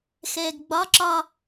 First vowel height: mid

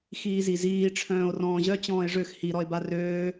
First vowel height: high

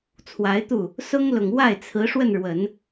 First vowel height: low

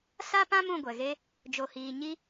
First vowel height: low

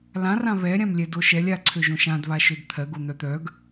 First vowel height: low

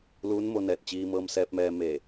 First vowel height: high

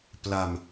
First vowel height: low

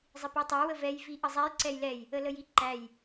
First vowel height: high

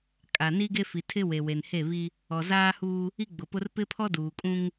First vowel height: low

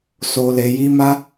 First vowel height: mid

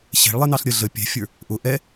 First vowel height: mid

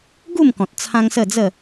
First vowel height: high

